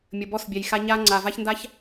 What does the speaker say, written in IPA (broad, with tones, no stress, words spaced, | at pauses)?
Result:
mʲə˨bɔ˦˨sbʲɛ˨jxa˦ ɲa˦ ŋ͡ǀa˨ va˦çnda˦ç